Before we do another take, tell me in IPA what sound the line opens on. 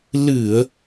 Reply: l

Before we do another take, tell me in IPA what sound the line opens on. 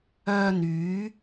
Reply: œː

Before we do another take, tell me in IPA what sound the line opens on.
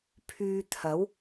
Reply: pʰ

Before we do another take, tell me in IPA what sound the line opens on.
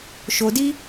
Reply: ʃ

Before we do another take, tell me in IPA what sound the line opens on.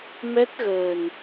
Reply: m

